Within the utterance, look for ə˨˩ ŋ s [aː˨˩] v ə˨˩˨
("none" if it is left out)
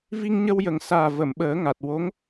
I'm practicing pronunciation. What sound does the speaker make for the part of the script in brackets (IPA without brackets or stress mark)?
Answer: aː˨˩